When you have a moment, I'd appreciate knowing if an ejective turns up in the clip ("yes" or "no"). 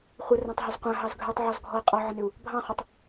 yes